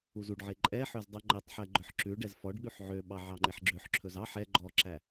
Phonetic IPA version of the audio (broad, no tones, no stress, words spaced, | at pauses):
uzuɖʕe ǃʼɛħøz dˤʉŋ͡ǃetˤħɛ ɡ͡ǃœħǁʉɖɛz fɔɖɠʉħ ʕøɓɑ ʕɑŋ͡ǃeħɡ͡ǁøħǁʰɵz ɑħ ɛ ɡ͡ǃɔǁæ